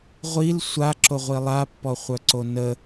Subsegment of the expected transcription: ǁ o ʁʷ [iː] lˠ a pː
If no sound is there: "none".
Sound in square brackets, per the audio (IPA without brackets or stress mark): i